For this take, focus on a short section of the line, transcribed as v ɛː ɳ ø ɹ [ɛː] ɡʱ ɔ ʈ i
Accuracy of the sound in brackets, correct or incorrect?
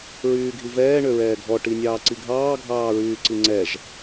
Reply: correct